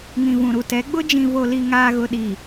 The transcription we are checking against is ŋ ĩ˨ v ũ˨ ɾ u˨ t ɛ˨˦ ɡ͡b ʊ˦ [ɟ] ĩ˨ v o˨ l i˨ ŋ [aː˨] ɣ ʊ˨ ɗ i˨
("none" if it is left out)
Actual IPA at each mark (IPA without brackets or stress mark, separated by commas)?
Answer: d͡ʒ, aː˨